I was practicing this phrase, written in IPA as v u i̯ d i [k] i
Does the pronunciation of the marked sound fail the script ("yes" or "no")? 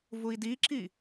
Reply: yes